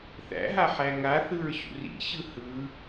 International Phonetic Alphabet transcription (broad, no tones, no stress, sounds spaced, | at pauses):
θ æ̰ ɦ a ħ æ ŋ a θ ɯ ɹ ɕ ṵ r ḭ ɕ ɯ h ɯ